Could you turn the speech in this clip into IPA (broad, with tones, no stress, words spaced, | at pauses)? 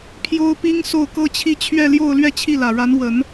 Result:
pʰjo˥ʊ̯pi˥ŋ so˥˩ʊ̯kɤ˥t͡ɕʰi˥ t͡ɕʰɥɛ˥˧ljo˥˧ʊ̯ lɥɛ˥˧t͡ɕʰi˥˩lä˨˩ɻa˧˥n wə˨˩˦n